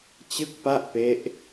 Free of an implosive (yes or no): yes